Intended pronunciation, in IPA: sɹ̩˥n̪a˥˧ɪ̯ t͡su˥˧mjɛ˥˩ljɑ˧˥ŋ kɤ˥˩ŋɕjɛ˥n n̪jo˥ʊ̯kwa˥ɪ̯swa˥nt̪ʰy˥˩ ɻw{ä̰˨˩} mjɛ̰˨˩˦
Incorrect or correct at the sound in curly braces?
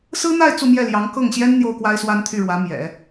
incorrect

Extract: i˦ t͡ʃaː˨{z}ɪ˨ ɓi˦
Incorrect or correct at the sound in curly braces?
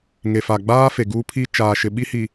incorrect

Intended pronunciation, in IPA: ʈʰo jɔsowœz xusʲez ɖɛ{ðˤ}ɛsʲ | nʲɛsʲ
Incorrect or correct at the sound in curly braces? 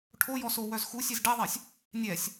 correct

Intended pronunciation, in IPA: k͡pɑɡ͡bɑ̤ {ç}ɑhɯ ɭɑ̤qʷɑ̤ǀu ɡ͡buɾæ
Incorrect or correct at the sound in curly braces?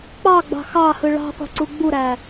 incorrect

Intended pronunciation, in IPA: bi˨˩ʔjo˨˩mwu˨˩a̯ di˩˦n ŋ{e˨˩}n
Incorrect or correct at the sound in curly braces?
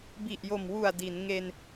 incorrect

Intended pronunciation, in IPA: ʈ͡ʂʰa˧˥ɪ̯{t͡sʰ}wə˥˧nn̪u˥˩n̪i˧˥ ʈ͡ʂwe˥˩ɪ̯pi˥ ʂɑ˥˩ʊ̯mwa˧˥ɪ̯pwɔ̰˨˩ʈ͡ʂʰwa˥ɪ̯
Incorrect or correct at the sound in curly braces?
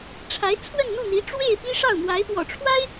correct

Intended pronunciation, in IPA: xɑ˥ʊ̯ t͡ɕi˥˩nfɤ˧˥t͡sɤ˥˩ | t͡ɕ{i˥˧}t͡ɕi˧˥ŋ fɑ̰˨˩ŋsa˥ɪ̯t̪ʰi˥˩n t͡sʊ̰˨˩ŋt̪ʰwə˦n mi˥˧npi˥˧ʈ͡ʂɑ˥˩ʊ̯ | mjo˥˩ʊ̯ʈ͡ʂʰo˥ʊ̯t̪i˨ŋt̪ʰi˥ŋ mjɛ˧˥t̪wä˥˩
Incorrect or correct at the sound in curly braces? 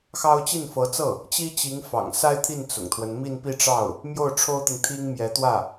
incorrect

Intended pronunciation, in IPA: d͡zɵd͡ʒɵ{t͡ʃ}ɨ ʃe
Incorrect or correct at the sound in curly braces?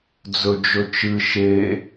correct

